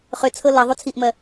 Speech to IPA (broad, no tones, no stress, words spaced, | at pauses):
χʏt͡sʰɤ lʌ ðˤut͡sʰiʔmɜ